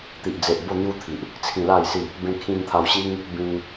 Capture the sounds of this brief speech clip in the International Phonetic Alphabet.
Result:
t̪ i˨ ʔ d͡z e˨ ʔ b o˥˧ n̪ j u˦ t̪ʰ i˨ ʔ | t͡sʰ ĩ˧ l a˥˧ j s i˥˧ | b ẽ˧ kʰ ĩ˧ n t̪ʰ a˧ w ɕ i˦ ŋ | b ĩ˧ ŋ

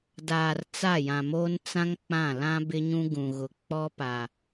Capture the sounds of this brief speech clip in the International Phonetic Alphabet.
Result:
d aː˨ r t͡s a˦˨ j ã˨ m oː˦ n t͡s ã˦ ŋ k͡p ã˦˨ l ã˦ b ɪ˦ ɲ ũ˦ ɡ ũ˨ ɣ ʊ˨ k͡p ɔ˦ p a˨

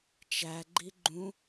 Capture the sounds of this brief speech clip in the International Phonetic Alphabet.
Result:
t͡ʃ æ ɡ͡ǃ i ɡ͡ǃ ũ

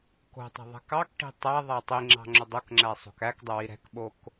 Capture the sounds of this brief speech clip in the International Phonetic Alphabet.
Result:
k o̤ tˤ ɛ̤ ðˤ ɛ̤ k ɑ k ʈ i̤ tˤ æ ðˤ æ tˤ i ŋ͡ǁ ɑ̤ ŋ͡ǁ ɵ dˤ o k ŋ͡ǁ æ sˤ o̤ k æ k dˤ ɵ w i ɾ ɛ̤ k ɓ o k

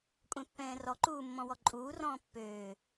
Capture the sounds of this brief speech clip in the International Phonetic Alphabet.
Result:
kʷʼ ɛ̃ pː ɛ̃ː r ɔ ǃ uː mː ɔ̃ w ɔ ǃʼ uː r ɔ̃ː pː øː

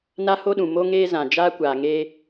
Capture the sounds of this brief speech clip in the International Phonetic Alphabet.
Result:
n a˦ h o˦ ɗ ũ˨ m o˦ ŋ eː˦ z ã˨ d͡ʒ aː˦ kʷ aː˨ ŋ e˦

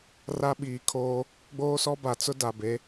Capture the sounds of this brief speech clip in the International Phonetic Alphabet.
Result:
r a˦ ɓ iː˨ kʰ oː˦ | ɡ͡b oː˦ s ɔ˦ b a˨ t͡s ʊ˦ d a˨ b e˨˦

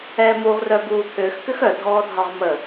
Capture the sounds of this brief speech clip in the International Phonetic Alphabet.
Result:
ɛː m u ʁ r œ b uː t̪ʰ ʏː x k ʏ x œ dʱ ɔː dʱ ɒ ʁ m ə

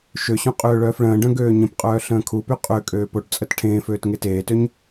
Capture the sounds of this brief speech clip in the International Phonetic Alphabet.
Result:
ʃ ø ɕ õ qʼ øː ɭ œː f ɭ ə̃ː ɖ œ̃ ɡ øː ɲ ə̃ p qʼ œː ɬ ə̃ː kʰ u p y qʼ ø kʼ øː p o ʈ t͡sʼ ə t ʈʰ ẽː f øː t ŋ e t eː t ø ɲ

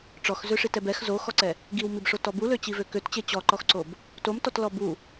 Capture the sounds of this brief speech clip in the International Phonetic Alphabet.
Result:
ʈ͡ʂ ɔ x z ø ʂ i t ɛ b ɛ x z o x ɔ ǀ ɛ | ɡ i w m i b ʂ o t ɔ b u l ø t͡ɕ i v ø k ø t t͡ɕ e t͡ɕ ɔ ǃ ɔ x ǀ o b | t o m t ɔ t l ɔ b u

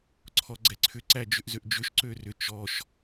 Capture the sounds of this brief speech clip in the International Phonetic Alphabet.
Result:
ǀʰ ɔ ɡ͡ǀ ɛ ǀʰ ʏ ǀ æ d͡ʒ ʏ ʔ z ø ʔ d͡ʒ ʏ ʃ ǀ ø r ʏ t͡ʃ ɔ ʃ

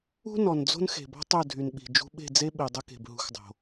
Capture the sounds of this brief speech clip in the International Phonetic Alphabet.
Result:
ṳ˦ n ɔ˨ n d͡z o̤˦ n x e̤˨ b ɔ̤˦ tˤ ɵ˦˨ dʱ y˨ n ɓ i̤˨ d͡ʒ ṳ˧ ɓ e̤˦˨ d͡z e˦ ɓ i˨ dˤ ə˦ k e̤˨ b ɦ ṳ˧ x dˤ o̤˨

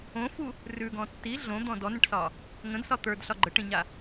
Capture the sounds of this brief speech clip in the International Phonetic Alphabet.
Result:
õ f u | r ʉ ɡ ɔ̃ tː i ɮ õ d̪ ɔ̃ d ɔ n ə̃ ʈ s ɒ | ŋ ə̃ d s ɒ t̪ ə˞ d ɬ ɒ ɡ͡ǃ ə ʈ ĩ ɲ a

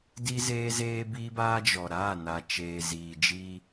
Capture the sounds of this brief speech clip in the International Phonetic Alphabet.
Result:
d i˦ z eː˦ z eː˦ b iː˦ b aː˦ d͡ʒ ɔ˨ ɾ aː˦˨ n a˨ t͡ʃ eː˨ z iː˨ d͡ʒ i˦

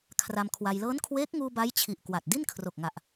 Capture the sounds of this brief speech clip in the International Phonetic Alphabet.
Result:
kʰ r a˧ m kʰ w a˧ j l ɤː˦˥ n kʰ w eː˦˥ k̚ ŋ uː˧ b a˦˥ j t͡ɕʰ i˨˩ ʔ k w a˨˩ t̚ d i˥˩ n kʰ r o˨˩ k̚ ŋ a˨˩ ʔ

